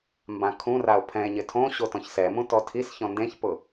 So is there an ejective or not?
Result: no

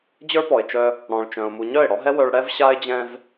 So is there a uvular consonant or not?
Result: no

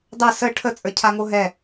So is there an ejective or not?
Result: yes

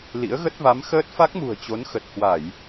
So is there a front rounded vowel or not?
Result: no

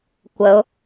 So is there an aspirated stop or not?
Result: no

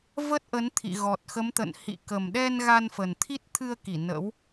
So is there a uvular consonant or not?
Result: no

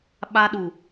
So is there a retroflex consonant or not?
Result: no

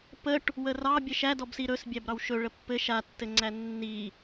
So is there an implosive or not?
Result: no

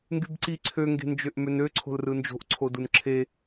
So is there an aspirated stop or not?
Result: yes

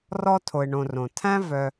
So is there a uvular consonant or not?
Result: no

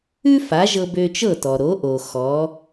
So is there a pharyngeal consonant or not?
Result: no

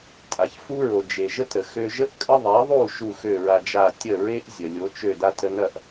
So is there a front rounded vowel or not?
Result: yes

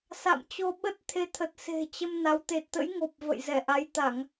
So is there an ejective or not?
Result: no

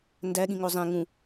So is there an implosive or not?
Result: yes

